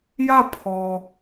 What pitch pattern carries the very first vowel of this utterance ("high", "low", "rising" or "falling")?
falling